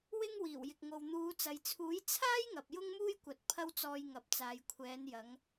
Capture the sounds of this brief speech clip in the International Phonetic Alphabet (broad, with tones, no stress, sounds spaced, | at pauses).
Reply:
w ɪ˥ ŋ w iː˨˩ w j ɪ˨ k̚ ŋ o˨ w n̪ uː˨˧ t͡s ɐ˨ j t͡sʰ uː˨˥ j t͡sʰ aː˥ j ŋ ɐ˨ p̚ j ʊ˥ ŋ m uː˥ j kʷ ɐ˨˥ t̚ pʰ ɐ˥ w t͡s ɔː˧ j ŋ ɐ˨ p̚ t͡s aː˨ j kʷʰ ɛː˨˧ n j ɐ˨˧ ŋ